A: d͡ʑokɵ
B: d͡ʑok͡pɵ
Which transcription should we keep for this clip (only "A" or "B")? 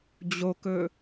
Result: A